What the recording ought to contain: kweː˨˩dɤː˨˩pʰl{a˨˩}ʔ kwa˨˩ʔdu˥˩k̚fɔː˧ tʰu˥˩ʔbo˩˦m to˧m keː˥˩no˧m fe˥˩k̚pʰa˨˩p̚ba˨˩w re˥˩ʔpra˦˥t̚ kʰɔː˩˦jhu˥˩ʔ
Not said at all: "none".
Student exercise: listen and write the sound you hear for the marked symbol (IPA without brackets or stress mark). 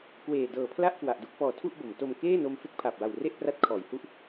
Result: a˥˩